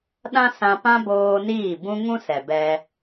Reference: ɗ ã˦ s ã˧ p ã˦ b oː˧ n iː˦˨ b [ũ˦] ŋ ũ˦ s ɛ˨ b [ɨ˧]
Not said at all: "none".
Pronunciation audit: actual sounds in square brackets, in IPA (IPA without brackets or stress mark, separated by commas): ũ˦, ɛ˧